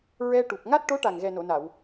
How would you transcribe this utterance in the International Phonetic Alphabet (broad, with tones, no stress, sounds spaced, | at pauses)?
ɹ ɛ˧ ʈ u˨˩ p̚ ŋ a˦˥ t̚ ʈ o˧˥ ʈ a˨˩ ŋ ɣ ɛ˨˩ n o˨˩˨ n a˨˩˨ w